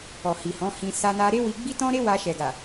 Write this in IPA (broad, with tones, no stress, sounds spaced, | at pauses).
ɔ˨ h i˨ h ɔ̃˨˦ h ĩ˧ s a˦ n a˧ ɾ e˦ w i˧ ɡ͡b i˦ t ɔ̃˦ ɾ e˦ w a˧ ʃ ɛ˨ ɡ a˨